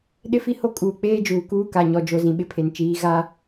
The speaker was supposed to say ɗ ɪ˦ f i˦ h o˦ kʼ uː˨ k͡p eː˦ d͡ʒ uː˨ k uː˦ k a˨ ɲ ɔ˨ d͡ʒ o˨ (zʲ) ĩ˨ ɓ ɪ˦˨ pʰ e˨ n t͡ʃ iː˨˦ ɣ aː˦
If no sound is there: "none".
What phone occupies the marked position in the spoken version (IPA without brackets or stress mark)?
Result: z